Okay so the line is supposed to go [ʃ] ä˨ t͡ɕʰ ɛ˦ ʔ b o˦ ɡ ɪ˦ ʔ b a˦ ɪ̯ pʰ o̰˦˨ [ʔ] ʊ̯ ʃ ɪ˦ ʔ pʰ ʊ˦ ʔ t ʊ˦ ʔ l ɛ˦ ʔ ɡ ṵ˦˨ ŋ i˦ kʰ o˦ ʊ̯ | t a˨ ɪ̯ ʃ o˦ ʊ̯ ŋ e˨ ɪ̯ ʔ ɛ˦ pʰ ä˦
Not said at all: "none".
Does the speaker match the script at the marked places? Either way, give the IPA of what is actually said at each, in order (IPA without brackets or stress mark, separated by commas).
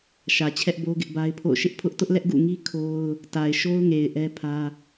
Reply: ʃ, none